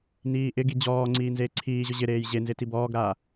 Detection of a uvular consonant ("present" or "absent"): absent